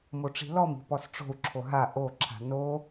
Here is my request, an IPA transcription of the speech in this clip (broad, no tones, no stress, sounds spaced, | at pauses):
m o ʈ͡ʂ i̤ l ɔ m i̤ p ɔ s ʈ͡ʂ o̤ u̯ ǁʰ o ɦ a ʔ o ǁʰ a̤ n o